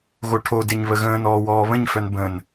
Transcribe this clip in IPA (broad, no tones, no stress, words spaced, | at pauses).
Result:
ɣoʈʰodeɲ βəɣə̃ːnɔː wɔːβə̃ɲfœn bə̃n